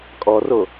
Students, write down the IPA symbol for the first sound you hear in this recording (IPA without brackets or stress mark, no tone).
kʼ